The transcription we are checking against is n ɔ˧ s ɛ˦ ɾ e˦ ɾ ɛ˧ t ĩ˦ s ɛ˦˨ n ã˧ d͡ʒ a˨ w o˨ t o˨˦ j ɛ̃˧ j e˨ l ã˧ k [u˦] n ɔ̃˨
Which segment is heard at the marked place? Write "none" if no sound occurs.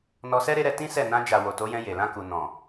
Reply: u˨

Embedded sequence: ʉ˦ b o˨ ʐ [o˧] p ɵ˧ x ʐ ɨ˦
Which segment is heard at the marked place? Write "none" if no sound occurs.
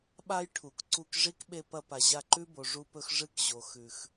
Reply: u˧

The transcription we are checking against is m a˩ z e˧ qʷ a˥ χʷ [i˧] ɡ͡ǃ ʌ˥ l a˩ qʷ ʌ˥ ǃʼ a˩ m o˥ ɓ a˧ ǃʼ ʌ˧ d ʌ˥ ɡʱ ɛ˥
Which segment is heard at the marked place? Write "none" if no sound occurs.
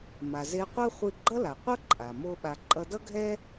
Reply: i˧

